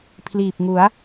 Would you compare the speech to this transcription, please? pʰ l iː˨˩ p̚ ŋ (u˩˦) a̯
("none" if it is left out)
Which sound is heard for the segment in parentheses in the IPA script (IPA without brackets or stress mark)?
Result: u˩˦